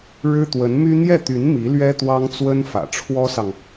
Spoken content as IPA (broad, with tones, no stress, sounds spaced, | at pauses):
ɻ ɻ̩˥ t̪ w ə˧˥ n m y˥ n̪ j ɛ˥˩ t̪ y˧˥ n m i˧˥ l ɥ ɛ˥ t̪ w ɑ˥ ŋ t͡s w ə˥ n f ä̰˨˩ ʈ͡ʂʰ w ɔ˥ s ɑ˨ ŋ